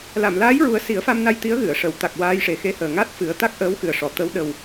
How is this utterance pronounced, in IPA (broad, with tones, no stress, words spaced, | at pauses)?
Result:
la˨˩˨mlaː˧˥jɹu˨˩˦ə̯ si˨˩˦ə̯fa˧mna˧j t̪i˧˥ə̯ɣɨ˨˩˨ə̯ʂə˨˩˨w t̪a˨˩k̚waː˧j ʂe˨˩xe˧˥həː˨˩ŋa˦˥t̚ fɨ˨˩˦ə̯ t̪a˦˥k̚ʔəː˧˥wxɨ˨˩ə̯ʂɔ˨˩˨ t̪ə˧˥w ɗə˨˩w